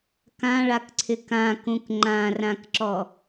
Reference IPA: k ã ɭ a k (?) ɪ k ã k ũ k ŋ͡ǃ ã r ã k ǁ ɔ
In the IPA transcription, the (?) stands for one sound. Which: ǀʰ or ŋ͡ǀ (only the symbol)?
ǀʰ